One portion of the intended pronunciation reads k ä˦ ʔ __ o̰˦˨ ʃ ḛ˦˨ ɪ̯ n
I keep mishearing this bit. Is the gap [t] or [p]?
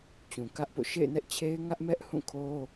p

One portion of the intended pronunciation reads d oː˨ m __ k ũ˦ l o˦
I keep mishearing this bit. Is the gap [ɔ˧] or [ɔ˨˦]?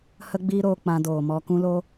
ɔ˧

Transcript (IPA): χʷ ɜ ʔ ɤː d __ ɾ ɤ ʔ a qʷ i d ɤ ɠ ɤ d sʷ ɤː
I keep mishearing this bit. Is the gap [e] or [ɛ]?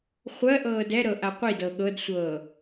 ɛ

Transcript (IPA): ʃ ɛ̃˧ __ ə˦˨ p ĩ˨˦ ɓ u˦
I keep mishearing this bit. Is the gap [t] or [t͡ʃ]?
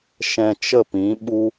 t͡ʃ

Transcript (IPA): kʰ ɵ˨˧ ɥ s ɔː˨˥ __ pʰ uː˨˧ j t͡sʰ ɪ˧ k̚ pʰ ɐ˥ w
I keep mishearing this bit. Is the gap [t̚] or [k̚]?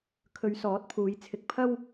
t̚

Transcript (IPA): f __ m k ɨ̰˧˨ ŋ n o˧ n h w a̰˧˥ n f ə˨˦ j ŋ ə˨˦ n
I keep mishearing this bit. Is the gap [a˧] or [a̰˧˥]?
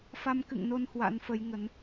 a˧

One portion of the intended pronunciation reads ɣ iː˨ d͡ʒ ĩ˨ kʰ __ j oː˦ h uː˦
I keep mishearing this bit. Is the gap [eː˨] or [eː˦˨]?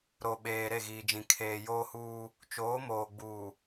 eː˨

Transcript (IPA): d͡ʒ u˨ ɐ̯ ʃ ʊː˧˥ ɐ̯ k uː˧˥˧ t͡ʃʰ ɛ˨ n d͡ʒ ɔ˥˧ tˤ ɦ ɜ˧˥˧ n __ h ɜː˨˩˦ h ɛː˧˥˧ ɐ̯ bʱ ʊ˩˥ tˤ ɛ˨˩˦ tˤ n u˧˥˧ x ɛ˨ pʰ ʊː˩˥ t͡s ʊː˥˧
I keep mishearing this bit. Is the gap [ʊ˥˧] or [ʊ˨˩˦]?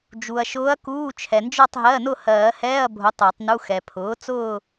ʊ˥˧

